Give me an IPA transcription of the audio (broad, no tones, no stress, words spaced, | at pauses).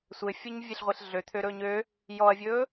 sʷɘfʲuɲvʲeɬʁʷeɬ ɮøt̪ʰøɾɵːɲ ø | jɔɐ̯vʲɵː